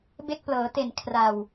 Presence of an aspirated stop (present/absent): present